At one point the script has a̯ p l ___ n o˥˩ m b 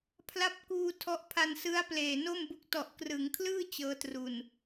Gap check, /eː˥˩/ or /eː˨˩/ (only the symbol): eː˨˩